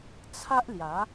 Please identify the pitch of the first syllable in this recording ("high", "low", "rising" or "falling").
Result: high